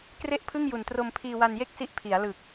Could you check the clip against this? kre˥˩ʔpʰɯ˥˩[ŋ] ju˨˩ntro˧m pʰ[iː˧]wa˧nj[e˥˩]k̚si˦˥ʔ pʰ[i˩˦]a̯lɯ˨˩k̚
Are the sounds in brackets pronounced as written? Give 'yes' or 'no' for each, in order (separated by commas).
yes, yes, yes, yes